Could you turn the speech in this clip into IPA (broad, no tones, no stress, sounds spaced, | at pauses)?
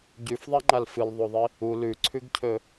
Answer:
ɟ ʉ f ðˤ a ŋ͡ǃ a l f ɨ l ðˤ o ðˤ i | u l ʉ ǀʰ ʉ ɡ cʰ ɵ